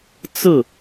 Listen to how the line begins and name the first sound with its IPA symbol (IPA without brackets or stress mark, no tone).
t͡s